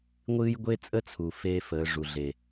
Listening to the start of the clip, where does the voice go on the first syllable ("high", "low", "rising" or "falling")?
high